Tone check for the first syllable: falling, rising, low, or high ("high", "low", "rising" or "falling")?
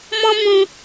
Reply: high